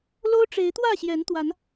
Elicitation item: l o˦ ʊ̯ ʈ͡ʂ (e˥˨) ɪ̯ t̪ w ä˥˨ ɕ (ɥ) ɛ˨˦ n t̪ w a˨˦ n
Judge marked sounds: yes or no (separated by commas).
no, no